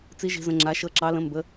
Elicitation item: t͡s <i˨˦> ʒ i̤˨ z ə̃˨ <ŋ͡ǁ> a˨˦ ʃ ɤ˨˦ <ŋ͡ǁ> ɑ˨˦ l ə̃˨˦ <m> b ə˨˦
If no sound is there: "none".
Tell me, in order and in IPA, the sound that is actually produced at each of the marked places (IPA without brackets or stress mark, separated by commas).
i˨˦, ŋ͡ǁ, ǁ, m